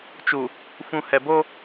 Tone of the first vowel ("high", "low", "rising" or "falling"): low